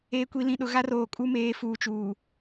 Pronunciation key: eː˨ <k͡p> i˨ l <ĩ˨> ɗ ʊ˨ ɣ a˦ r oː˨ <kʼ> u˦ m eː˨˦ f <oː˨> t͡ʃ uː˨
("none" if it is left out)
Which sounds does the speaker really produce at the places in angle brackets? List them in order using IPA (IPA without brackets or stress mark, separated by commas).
kʷ, ĩ˨, kʼ, uː˨